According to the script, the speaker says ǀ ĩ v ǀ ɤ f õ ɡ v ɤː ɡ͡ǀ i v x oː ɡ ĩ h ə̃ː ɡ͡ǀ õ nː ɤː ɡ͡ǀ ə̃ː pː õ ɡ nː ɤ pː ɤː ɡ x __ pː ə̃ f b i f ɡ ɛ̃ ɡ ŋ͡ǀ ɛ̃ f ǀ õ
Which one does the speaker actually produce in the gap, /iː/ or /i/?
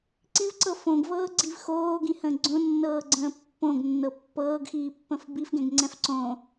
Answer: iː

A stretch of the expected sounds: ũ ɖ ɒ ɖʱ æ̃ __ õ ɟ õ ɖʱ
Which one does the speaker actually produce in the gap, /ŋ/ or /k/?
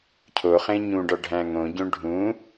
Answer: ŋ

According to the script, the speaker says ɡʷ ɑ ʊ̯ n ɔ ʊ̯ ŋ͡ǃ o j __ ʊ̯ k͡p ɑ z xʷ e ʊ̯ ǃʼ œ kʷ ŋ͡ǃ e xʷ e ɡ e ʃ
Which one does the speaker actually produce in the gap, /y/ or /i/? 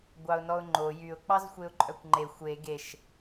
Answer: y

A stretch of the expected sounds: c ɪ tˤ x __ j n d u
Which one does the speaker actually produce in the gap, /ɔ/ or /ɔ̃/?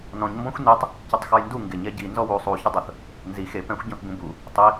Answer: ɔ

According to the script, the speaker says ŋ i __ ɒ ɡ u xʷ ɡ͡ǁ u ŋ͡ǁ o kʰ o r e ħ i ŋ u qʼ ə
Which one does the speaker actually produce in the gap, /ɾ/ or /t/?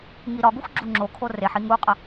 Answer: ɾ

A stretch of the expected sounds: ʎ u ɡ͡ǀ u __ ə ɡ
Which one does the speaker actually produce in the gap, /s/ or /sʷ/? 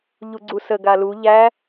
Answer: s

